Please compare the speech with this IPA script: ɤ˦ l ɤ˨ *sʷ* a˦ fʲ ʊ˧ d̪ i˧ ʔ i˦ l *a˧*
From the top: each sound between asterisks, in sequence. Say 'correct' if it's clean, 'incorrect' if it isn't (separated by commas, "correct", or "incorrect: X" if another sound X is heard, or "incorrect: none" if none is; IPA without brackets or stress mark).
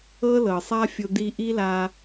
incorrect: sˤ, correct